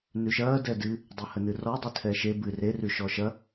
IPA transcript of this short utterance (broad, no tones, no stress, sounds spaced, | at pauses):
n ʉ ʃ ɐː d ɛ d ɨ | dˤ e h ə n ɨ r ɔ dˤ ɨ tʰ ɛ ʃ e b ɨ r e r ʉ ʃ ɔ ʃ ɐ